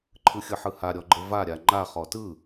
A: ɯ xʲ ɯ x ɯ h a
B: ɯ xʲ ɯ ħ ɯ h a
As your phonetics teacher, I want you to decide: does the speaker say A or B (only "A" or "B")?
B